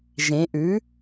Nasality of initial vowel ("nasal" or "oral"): nasal